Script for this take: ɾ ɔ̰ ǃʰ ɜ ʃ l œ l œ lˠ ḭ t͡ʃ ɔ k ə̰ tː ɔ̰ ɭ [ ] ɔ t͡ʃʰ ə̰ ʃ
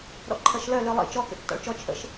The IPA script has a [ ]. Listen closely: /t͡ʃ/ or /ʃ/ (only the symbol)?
t͡ʃ